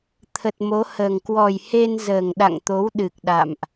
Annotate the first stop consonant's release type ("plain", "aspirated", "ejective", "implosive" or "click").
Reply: aspirated